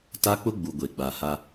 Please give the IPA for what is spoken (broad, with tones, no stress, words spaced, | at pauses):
ta˦k͡pʊ˦ɡ͡bu˨ ɡʷe˨ɡ͡ba˨ ha˦